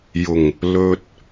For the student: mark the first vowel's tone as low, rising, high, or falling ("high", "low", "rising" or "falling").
low